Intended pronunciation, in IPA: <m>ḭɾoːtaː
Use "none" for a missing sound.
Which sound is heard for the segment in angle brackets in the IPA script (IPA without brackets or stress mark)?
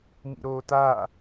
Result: m